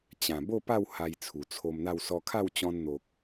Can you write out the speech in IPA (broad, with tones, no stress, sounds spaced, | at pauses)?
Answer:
t͡ɕ ã˨˩ b o˥˧ p a˥˧ w h a˧ j t͡sʰ u˨˩ t͡sʰ o˧ m n̪ a˥˧ w s ɔ˧ kʰ a˥˧ w t͡ɕ ɔ̃˧ n n̪ o˨ k̚